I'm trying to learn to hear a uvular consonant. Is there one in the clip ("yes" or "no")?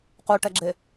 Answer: yes